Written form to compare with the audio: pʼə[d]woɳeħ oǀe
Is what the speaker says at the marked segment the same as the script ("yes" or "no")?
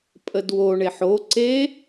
yes